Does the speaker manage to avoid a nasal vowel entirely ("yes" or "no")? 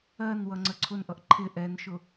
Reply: yes